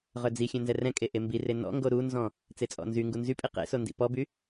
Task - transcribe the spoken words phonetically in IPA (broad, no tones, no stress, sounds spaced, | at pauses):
ʁ œ d͡z i xʲ ɛ̃ n z ɛ r ɛ̃ kʼ e ʔ e m b i r e n ɔ̰ ŋ ɡ o ɾ u n z ɔ̃ | t͡s e t͡sʼ ɔ̰ n z y ŋ ɡ u n z y pʼ i q ḛ s o n d ḭ p ɔ b y